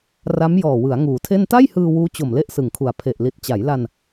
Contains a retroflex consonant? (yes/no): no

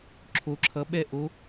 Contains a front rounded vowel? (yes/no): no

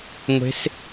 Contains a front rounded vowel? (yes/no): no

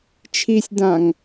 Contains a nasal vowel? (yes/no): yes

